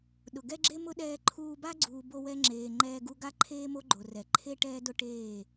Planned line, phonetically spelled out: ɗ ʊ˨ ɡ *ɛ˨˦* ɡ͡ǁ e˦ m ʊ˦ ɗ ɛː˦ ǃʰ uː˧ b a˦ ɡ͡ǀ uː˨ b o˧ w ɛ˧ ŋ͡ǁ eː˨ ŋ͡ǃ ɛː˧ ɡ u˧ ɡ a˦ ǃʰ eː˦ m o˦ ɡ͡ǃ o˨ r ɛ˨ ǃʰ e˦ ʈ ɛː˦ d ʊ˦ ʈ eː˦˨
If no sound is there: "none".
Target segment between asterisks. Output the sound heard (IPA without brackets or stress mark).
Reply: ɛ˦